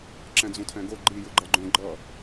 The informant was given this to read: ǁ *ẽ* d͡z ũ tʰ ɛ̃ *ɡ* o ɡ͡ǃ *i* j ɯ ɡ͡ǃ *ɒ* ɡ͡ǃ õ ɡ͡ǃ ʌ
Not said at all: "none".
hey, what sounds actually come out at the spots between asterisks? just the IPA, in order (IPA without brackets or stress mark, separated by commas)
ɛ̃, ɡ, i, ʌ